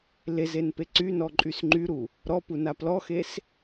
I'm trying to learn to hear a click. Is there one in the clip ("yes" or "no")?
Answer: yes